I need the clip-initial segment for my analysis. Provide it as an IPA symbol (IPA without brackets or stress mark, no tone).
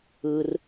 ɯː